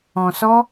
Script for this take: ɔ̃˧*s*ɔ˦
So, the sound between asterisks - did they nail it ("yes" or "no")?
yes